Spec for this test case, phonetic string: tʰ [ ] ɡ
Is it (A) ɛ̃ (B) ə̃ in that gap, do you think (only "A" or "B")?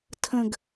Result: B